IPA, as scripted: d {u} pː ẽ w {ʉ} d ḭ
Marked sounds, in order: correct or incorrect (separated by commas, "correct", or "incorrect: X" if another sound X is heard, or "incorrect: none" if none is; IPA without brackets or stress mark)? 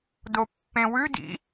incorrect: o, correct